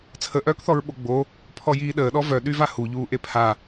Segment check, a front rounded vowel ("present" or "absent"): present